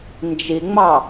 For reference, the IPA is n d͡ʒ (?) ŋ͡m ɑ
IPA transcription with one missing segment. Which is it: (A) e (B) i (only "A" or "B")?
B